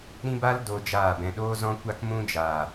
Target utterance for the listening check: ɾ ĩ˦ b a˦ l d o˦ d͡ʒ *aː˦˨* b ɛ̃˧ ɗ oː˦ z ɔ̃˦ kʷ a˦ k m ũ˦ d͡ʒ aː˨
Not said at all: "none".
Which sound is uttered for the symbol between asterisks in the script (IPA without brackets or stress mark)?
aː˦˨